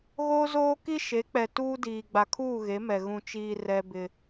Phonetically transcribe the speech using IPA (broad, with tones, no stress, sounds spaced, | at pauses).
ɣ oː˦ z oː˦ k i˦ ʃ e˨˦ k͡p ɛ˨ t uː˦ d iː˨ ɡ͡b a˨ kʰ uː˦˨ ɣ e˨˦ m ɛ˨ ɣ ũ˨ t͡ʃ iː˨ r ɛ˦ b ɪ˦